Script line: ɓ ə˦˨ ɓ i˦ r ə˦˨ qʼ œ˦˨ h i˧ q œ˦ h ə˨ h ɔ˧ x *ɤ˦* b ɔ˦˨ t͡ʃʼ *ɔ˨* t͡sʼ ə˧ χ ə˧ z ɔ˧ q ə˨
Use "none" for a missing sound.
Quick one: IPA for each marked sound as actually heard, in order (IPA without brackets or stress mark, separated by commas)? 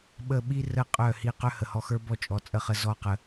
ə˞˦, ɔ˨